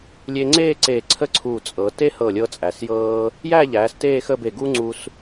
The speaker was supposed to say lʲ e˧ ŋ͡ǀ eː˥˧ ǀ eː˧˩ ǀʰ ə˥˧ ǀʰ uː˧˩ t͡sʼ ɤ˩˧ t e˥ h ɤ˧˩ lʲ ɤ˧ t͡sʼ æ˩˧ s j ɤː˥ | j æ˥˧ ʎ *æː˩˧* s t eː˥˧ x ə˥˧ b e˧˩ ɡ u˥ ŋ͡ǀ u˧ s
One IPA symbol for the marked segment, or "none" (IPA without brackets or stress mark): æː˩˧